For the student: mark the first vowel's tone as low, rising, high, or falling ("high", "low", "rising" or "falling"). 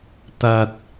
low